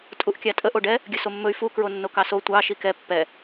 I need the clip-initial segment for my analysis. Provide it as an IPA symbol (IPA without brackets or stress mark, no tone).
tʼ